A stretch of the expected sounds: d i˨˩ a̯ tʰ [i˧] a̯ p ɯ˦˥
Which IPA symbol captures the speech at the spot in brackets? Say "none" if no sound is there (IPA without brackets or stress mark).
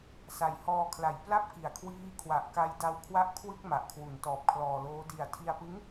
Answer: i˧